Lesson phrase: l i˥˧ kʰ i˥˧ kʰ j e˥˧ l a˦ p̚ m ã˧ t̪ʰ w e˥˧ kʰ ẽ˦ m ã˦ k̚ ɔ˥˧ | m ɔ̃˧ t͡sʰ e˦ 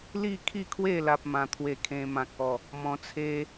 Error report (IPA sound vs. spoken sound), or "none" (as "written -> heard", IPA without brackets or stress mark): j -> w